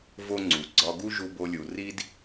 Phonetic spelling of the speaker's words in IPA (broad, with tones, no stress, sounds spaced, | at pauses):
v o˥ ŋ͡ǀ u˩ ɡ͡ǀ ɒ˧ ɡ u˥ ʒ u˧ b o˧ lʲ u˩ r i˥ d